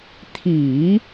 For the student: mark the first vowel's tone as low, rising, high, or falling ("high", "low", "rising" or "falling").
low